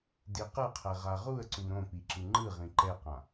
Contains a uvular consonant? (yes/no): yes